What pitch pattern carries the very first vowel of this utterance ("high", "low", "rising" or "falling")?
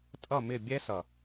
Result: falling